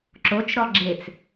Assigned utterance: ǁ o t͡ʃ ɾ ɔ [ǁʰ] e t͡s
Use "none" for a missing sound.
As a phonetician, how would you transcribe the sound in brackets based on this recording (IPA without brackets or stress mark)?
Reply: ɡ͡ǁ